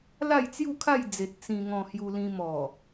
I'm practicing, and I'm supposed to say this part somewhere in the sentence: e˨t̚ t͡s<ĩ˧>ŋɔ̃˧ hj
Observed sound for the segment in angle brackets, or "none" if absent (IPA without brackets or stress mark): ĩ˧